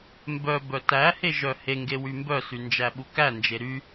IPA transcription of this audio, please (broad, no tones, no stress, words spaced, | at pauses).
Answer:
mbœ bœtæhe ʒœheŋɡe wymbœsy nd͡ʒæɓukænd͡ʒe ɾy